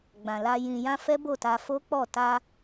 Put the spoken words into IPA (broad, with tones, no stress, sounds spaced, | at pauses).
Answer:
ɡ͡b ã˨ l a˧ j ĩ˨ j ã˧ f ɛ˦ b o˦˨ t a˧ f o˦ k͡p ɔ˦˨ t a˧